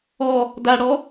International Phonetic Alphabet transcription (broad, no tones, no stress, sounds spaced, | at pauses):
ɔ | d a ɽ ɔ